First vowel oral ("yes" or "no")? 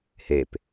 yes